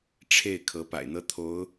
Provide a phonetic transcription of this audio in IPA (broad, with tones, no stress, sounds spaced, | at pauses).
ʈ͡ʂʰ e˥˩ ɪ̯ kʰ ɤ˧˥ p a̰˨˩ ɪ̯ n̪ ɤ˥ t̪ʰ o˧˥ ʊ̯